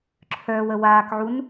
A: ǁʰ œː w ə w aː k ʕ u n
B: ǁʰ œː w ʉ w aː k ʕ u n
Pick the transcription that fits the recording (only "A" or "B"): A